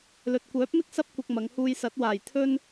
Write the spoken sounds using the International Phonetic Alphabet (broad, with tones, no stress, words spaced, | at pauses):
lɵ˨t̚kʷœː˨˥p̚mɪ˥k̚ sɐ˥p̚kʷɐ˧k̚ mɐ˨˧ŋhuː˧jsɐ˨˥t̚ waː˨˩j t̪ʰɵ˧n